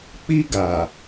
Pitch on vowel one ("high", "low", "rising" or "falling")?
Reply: high